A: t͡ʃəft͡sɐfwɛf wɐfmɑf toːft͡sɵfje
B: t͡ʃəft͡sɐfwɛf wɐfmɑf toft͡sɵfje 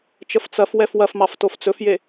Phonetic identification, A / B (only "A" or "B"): B